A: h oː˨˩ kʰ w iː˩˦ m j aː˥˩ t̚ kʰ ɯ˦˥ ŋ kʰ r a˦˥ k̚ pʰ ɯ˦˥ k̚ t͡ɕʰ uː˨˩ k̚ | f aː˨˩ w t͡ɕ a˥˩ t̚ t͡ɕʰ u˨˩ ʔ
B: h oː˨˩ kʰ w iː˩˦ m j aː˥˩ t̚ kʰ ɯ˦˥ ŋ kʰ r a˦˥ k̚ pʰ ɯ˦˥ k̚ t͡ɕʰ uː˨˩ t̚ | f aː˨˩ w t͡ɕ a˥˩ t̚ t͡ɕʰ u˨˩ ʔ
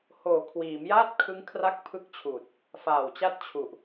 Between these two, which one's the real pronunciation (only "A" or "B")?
B